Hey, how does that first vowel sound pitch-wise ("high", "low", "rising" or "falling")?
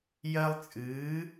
high